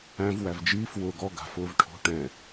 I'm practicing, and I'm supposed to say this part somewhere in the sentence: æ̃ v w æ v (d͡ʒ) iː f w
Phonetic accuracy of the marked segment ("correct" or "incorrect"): correct